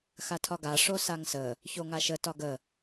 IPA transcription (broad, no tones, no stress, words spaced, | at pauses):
xatʰɒɡa ʂosaŋsə | çoŋaʃə tɒɡə